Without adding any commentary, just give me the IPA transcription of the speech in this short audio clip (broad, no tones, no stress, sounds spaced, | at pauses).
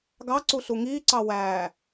ɡ ɑ ǀ u ɬ u ŋ iː ǀ ɑ w æː